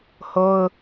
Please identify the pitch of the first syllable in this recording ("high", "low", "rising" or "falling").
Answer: high